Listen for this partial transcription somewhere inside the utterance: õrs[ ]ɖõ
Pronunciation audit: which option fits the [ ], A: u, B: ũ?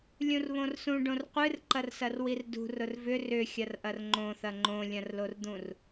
B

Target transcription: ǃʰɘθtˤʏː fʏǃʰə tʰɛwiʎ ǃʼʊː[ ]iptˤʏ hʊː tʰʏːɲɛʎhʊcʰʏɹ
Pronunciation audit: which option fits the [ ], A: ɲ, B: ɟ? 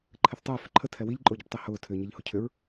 B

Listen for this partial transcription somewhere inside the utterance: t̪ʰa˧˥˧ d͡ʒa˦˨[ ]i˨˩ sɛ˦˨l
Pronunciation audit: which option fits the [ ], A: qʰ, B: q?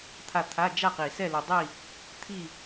B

